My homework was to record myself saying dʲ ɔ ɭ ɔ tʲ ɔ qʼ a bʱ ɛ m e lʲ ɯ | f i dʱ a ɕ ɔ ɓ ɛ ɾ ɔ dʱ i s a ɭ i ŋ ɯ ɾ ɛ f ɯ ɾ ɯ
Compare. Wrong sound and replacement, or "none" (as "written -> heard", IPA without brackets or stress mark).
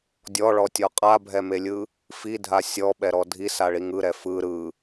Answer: ɕ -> sʲ